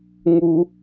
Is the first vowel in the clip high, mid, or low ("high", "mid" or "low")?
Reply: high